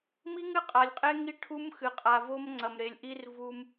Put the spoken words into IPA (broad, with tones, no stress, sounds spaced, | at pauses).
m i˦ ŋ ɨ˦ qʼ a˨ lʲ qʼ e˦ ŋ i˦ ʈʰ u˦ m x ɨ˨ qʼ a˨ v o˦ m ŋ͡ǀ ɐ˨ m ɾ e˨ lʲ ʔ i˦ r v u˦ m